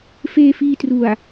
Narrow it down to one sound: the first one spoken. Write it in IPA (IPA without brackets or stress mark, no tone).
f